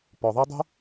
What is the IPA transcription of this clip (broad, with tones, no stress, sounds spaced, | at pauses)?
p ɔ˨ ðˤ ɛ˦ dˤ ṳ˦